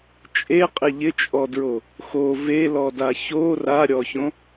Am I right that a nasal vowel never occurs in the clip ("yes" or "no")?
no